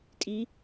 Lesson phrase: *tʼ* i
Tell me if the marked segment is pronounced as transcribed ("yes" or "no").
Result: yes